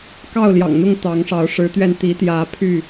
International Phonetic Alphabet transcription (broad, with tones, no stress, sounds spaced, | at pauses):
k ɑ˥˨ ʊ̯ l j ɑ̰˨˩ ŋ n̪ ʊ˥˨ ŋ t̪ ɑ˨˦ ŋ ʂ ɑ˨˦ ʊ̯ ʂ ɻ̩˨˦ t̪ ɥ ɛ˧ n t̪ i˨˦ t̪ j ä˨˦ pʰ y˥˨